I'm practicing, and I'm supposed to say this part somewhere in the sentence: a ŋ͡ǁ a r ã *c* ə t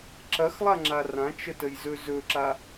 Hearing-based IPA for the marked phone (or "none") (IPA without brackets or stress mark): t͡ʃ